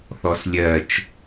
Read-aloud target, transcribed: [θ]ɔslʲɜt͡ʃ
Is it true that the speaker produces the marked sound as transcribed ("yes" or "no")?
yes